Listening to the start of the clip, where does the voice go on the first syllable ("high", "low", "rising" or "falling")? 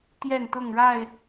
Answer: falling